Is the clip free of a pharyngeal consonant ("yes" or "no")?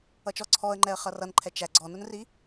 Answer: yes